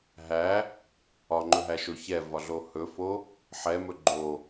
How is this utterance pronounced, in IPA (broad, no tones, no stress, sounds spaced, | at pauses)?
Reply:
ɦ æ | ɒ ŋ͡ǃ ɵ ɦ æ ʃ o ç ɛ v ɒ ɮ o h ɵ f o | ħ ɛ m ɵ ɡ͡ǃ o